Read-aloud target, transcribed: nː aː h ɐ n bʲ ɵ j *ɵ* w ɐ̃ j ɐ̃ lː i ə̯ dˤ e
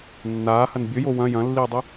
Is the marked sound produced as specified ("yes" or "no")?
no